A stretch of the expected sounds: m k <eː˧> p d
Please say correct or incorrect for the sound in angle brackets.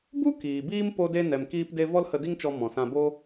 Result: incorrect